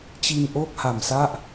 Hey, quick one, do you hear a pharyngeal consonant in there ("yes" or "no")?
no